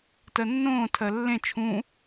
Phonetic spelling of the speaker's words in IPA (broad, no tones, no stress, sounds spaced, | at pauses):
t ɜ nː õː tʰ ɜ lː ẽ t͡ʃʰ ũ